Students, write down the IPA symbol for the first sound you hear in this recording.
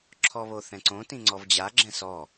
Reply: ǁʰ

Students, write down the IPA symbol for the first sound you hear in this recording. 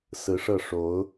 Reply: s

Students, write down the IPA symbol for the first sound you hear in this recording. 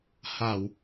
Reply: h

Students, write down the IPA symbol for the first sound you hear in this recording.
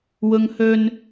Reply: w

